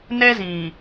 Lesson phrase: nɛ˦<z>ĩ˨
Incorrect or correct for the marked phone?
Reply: correct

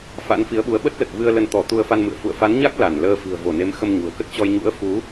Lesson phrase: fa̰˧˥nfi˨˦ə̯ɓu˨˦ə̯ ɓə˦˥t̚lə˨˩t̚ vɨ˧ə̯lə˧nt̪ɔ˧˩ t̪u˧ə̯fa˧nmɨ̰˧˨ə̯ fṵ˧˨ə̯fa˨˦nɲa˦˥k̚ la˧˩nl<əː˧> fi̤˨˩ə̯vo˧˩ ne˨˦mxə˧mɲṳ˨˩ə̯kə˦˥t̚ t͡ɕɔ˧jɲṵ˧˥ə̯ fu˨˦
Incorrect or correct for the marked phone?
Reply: correct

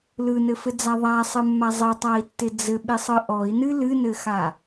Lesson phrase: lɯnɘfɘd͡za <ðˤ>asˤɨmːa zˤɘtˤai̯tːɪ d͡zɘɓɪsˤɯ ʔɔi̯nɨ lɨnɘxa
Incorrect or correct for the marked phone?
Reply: correct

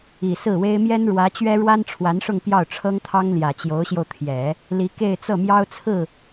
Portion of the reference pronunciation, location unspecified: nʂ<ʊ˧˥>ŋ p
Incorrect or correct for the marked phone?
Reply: incorrect: ʊ˥˧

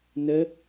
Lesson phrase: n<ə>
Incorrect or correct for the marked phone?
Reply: correct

